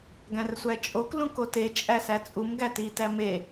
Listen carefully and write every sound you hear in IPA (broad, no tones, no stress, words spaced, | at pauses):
ɡæ̃rsʷæt͡ʃʼok lũkote t͡ʃʼæsæt͡sʼum ɡæti tæme